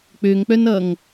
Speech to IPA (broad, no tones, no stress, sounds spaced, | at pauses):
k͡p ø ŋ k͡p œ n ʌ ŋ